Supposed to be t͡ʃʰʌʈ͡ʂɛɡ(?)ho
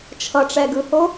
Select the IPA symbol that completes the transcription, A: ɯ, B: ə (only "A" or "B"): A